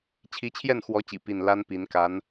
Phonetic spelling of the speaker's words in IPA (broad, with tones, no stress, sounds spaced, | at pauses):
t͡ɕʰ i˧˥ t͡ɕʰ j ɛ˥˩ n x w ɔ˧˥ t͡ɕ ḭ˨˩ p i˥˩ n l a˥ n p i˧˥ n k a˧˥ n